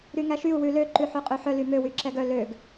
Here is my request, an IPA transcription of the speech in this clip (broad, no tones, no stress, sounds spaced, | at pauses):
ɾ y ŋ æ ʃ y u̯ w ʉ l ø ǃ ʉ ħ ø qʼ ø ħ œ l y m ø w y ǁ ɛ ɡ œ l ø ɡ